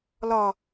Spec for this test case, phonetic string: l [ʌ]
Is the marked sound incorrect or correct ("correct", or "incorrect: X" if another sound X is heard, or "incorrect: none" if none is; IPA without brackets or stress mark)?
incorrect: ɒ